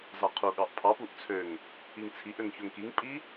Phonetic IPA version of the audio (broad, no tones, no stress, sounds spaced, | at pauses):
z ɑ qʰ u ɠ ɑ ʔ pʰ ɑ p u ʔ t͡sʰ ø ŋ | i ŋ t͡sʰ i ʔ ø ŋ ç ø ŋ k i ŋ pʼ i